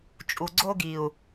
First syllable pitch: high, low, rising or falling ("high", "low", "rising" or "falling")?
low